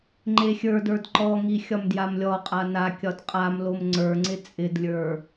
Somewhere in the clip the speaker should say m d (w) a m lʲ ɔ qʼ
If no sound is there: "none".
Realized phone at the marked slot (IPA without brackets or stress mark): j